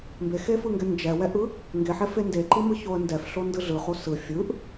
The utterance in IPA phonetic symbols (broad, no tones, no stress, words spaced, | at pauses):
mbexefɯŋɡɛ nd͡ʒɛwɛʔɯ | ŋɡeħɛfe ndeǃimɯçoə̯ ndɛfɬondɯ ɮɯχo sɯ fʲɯʔ